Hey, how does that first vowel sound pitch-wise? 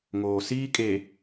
low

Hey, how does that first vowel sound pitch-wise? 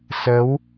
rising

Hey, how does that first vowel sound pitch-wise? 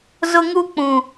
high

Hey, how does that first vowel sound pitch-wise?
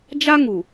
high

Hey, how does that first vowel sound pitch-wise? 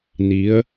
rising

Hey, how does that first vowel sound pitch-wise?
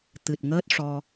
low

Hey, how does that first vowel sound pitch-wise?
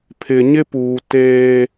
low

